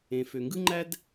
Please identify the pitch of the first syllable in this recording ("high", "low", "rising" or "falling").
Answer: low